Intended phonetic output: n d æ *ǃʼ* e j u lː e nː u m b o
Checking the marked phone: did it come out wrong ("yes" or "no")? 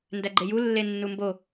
yes